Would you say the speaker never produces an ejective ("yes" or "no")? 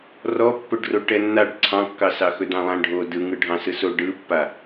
yes